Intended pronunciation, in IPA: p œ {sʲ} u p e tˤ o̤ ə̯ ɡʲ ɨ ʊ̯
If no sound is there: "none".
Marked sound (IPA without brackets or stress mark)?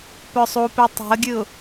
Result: sˤ